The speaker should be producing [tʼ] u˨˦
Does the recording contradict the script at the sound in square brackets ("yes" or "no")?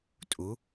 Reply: no